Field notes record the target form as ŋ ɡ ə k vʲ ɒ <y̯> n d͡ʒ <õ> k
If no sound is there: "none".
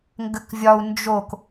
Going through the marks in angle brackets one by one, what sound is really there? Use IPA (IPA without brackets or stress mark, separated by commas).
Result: u̯, o